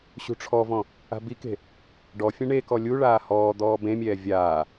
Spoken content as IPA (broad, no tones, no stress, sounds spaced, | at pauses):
ɕ ṳ ʈ͡ʂʰ ɔ v ɔ̃ | a̤ b i k e̤ | ɖ ɔ fʲ ɛ̃ ɳ e k ɔ lʲ u ɭ aː h ɔː d̪ ɔː b ẽ mʲ ɛː vʲ aː